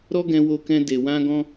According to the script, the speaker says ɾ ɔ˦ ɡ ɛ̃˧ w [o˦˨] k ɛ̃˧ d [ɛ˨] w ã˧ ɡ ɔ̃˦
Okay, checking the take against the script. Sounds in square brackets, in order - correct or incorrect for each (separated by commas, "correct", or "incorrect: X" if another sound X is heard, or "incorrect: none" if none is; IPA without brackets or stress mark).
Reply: incorrect: o˧, incorrect: e˨